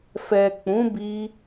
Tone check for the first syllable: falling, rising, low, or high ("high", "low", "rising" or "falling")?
low